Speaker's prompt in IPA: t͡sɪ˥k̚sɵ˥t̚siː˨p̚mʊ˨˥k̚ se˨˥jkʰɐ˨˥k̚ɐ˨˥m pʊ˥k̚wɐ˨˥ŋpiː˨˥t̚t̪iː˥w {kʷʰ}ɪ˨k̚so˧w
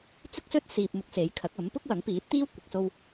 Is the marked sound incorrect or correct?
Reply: incorrect